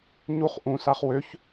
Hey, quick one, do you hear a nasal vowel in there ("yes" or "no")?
yes